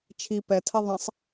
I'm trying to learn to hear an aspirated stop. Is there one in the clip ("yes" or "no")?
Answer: yes